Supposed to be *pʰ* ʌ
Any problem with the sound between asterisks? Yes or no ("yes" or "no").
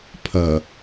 no